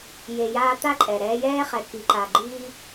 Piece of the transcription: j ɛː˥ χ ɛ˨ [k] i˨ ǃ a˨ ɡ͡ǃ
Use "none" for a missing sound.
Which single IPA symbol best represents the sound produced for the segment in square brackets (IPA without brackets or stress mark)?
k